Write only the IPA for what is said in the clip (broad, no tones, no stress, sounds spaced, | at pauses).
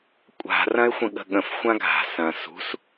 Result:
kʷʼ a̤ r ɐ̃ ɪ̯ xʷ ə̃ ɠ ə̤ ɠ ə̃ f xʷ ã ɡʱ a̤ s ɐ̃ s ṳ s